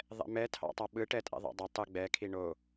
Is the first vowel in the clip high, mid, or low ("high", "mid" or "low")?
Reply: mid